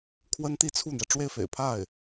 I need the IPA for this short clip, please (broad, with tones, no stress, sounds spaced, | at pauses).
kʰ w ə˥ n t̪ i˥˧ t͡sʰ u˥˩ n̪ j ɛ˩ ʈ͡ʂ w e˥˩ ɪ̯ f ḛ˨˩ ɪ̯ pʰ a˥˩ ɪ̯